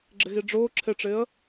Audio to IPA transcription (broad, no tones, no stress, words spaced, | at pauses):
ɡ͡ǁɪɣiɖ͡ʐʊː ǁʰɪʈ͡ʂɪːə̯